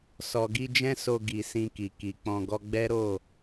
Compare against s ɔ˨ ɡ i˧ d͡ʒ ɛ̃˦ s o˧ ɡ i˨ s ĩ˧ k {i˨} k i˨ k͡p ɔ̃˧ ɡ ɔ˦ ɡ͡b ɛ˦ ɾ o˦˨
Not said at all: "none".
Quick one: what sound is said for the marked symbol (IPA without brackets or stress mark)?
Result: i˨